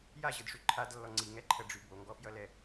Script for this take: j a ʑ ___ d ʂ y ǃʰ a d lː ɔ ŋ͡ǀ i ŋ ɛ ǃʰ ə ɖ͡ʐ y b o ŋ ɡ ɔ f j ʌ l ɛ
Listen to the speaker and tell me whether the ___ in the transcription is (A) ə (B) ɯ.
B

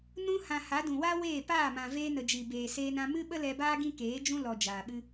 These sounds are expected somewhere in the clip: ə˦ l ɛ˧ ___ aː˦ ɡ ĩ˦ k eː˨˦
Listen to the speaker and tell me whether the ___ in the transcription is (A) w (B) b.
B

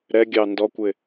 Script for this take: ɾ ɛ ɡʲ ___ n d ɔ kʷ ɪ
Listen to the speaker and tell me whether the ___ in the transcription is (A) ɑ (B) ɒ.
A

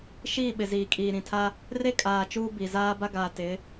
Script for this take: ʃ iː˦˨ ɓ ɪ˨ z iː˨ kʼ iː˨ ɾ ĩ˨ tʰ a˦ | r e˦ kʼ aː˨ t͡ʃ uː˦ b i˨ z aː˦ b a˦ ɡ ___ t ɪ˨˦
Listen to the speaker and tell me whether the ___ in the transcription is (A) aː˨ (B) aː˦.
A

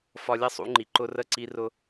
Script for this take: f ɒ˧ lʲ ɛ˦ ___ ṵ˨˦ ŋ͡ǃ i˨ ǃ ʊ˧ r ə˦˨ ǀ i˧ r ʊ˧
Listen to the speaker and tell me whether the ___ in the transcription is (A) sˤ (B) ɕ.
A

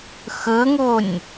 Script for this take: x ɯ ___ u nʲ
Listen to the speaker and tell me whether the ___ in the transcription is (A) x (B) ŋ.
B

